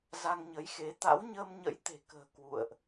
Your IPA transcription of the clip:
z a˧ ŋ ɲ ə˨˦ j x e˨˦ t̪ a̰˧˥ w ɲ əː˧ m ɲ ə̰˧˥ j t̪ e̤˨˩ k ə̤ː˨˩ k w ṵ˧˨ ə̯ ʔ

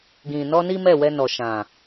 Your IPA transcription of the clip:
ɡ ĩ˨ n ɔ˧ n i˦ m ɛ˦˨ w ɛ˧ n ɔ˨ ʃ ã˨

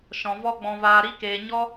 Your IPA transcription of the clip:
ʃ ɔ̃˨ v ɔ˧ ɡ͡b ɔ̃˨ v aː˨ ɾ i˧ k eː˨ ɲ ɔ˦

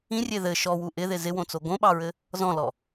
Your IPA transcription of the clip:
ĩ rʲ e ð ɘ ʃ ɔ w u ʔ ɪ ð ɪ z ɪ w õ t͡s o ɡ õ ɓ ɑ ɹ ɘ | z ɔ̃ l ɔ

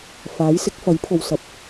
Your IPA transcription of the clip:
f aː˨˥ j s ɪ˨˥ k̚ f ɐ˨˥ j pʰ o˨ w s ɐ˨˥ p̚

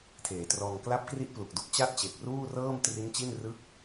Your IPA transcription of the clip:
tʰ eː˩˦ t r ɔː˧ ŋ k l a˦˥ p̚ k r i˦˥ ʔ p l u˨˩ k̚ d u˦˥ k̚ t͡ɕ a˥˩ t̚ t͡ɕ e˨˩ k̚ r uː˥˩ r ɤː˥˩ m t r i˦˥ n t͡ɕ i˥˩ n r ɯ˥˩ k̚

